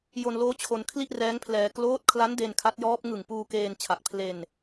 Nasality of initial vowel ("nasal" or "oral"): oral